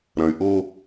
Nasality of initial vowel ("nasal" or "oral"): nasal